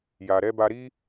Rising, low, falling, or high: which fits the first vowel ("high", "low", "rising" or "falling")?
low